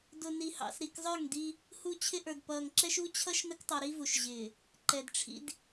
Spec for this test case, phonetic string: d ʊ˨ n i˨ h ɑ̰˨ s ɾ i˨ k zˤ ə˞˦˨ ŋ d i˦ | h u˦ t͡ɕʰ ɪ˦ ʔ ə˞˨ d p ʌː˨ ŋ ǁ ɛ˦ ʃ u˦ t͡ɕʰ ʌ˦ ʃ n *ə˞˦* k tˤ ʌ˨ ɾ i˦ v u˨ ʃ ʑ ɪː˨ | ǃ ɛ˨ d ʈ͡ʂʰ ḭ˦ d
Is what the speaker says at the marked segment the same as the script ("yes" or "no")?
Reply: no